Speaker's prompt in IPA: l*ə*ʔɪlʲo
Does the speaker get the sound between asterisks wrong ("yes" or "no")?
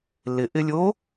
yes